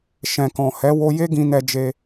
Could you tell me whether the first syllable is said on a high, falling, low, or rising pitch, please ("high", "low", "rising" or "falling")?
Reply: low